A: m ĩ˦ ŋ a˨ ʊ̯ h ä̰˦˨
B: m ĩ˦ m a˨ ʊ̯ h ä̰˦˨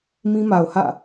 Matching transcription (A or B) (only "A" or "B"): B